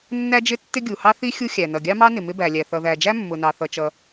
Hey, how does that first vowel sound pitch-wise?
high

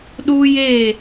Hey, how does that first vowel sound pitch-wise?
high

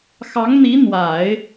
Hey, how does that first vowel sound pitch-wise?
rising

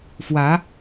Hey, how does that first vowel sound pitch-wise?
rising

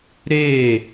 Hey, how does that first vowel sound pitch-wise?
falling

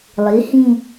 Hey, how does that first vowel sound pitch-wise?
rising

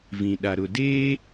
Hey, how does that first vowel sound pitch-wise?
low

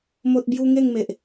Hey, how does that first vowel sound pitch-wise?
high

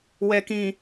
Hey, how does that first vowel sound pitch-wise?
low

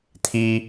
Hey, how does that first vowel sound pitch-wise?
high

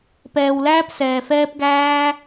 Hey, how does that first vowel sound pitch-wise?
low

